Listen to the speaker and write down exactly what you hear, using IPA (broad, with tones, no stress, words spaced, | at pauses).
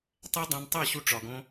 tˤæ˦dˤæ̃˧ntˤæ˦˨ɕu˧ ʈ͡ʂɒ˨ɡõ˧